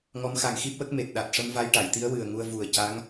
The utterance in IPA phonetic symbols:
ŋɔ˧˥mxa˨˩ŋxi˦˥p̚wə˦˥k̚ me˨˩t̚ɗa˨˩t̚ ʂə˧mva˧jʈa˨˩˨jt̪i˧˥ə̯ wɨ˨˩ə̯ŋu˧ə̯ vu˨˩ə̯ ca˧˥ŋ

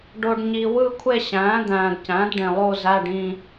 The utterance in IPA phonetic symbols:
ɖo˨ɖɲi˨wɯ˥˧kʷʰe˥˧ ɕæ̃ː˩˥d̪æ̃ː˨dcæ̃˩˥d ɖẽ˨lˠo˥˧zæ˧˥˧ɖĩ˥˧

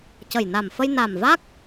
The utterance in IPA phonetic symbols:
cə˨˩jna˨˩mfə˧j na˨˩mva˦˥k̚

